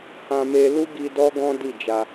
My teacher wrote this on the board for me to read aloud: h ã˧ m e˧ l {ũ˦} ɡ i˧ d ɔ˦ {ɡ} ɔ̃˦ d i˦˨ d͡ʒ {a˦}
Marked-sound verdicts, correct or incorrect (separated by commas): incorrect, correct, incorrect